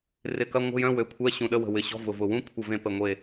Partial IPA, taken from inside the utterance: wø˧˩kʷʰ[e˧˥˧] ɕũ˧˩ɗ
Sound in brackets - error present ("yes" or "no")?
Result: yes